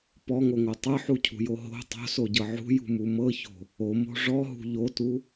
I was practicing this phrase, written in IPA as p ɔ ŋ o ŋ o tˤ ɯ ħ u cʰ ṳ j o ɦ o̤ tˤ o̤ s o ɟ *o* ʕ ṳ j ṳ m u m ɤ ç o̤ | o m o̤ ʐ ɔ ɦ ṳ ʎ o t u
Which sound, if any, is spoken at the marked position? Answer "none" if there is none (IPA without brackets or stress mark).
ɤ